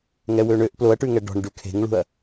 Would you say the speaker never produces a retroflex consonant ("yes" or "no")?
no